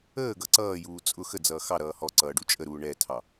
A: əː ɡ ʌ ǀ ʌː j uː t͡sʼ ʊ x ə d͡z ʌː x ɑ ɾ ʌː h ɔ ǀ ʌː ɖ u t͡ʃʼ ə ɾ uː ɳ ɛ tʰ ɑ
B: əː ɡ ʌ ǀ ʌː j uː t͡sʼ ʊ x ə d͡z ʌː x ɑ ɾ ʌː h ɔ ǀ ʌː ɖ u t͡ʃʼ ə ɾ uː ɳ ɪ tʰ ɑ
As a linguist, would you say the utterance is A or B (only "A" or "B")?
A